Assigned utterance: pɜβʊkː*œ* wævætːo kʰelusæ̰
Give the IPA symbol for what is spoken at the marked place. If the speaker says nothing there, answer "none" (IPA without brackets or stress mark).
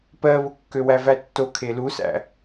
ø